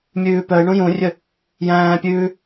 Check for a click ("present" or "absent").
absent